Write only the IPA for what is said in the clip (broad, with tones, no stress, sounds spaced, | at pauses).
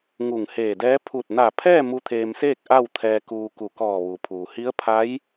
ŋ u˧˩ ŋ h eː˧˩ d ɛː˧˥ pʰ u˧˩ t̚ n a˧˩ pʰ ɛː˥˨ m u˧˥ t̪ʰ eː˧ m s eː˥˨ k̚ ʔ a˥˨ w t̪ʰ ɛː˧ k uː˧ k u˧˩ k ɔː˧˩ ʋ u˩ pʰ uː˩ h i˧˥ ə̯ pʰ a˧˥ j